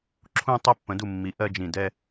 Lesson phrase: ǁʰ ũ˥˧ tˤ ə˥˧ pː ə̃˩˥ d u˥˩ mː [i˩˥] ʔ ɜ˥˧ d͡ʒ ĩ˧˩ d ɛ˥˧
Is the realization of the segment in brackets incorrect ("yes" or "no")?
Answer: no